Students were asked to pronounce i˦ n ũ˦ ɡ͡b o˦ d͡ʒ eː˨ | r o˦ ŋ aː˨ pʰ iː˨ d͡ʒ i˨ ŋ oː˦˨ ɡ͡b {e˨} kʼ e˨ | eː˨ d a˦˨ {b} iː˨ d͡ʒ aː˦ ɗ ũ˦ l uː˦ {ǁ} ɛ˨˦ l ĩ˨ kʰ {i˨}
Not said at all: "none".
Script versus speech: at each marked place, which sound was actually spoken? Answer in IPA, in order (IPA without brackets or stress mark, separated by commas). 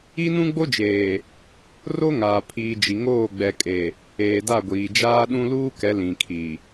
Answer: ɛ˨, ɡʷ, k, i˨